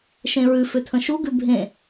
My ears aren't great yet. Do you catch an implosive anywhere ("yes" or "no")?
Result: no